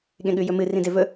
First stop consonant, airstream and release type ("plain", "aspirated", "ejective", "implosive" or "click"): implosive